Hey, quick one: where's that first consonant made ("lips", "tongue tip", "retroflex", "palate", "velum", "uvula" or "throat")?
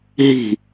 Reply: throat